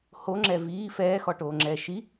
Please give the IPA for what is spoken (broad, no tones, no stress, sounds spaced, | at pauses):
h o ŋ͡ǁ ɛ v iː f ɛː x ɔ ʈ oː ŋ͡ǁ ɛː ʃ i